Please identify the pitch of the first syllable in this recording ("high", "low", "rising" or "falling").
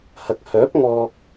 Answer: rising